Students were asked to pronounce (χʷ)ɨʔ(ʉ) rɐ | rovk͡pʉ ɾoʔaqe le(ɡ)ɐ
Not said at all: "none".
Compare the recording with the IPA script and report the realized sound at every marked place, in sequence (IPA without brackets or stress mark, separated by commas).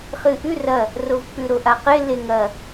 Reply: χ, ʉ, ŋ